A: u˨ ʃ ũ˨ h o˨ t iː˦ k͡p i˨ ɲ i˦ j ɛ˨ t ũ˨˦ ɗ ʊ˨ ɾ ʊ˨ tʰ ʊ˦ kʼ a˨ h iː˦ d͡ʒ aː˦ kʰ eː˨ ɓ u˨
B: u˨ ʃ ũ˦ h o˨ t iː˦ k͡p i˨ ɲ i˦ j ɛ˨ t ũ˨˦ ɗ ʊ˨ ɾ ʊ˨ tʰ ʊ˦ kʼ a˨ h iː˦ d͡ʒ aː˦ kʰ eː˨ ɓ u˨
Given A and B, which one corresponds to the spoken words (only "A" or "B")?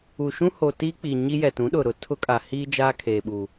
B